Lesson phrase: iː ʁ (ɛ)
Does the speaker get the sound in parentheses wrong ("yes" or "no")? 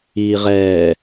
yes